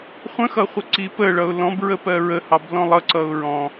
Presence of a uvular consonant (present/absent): present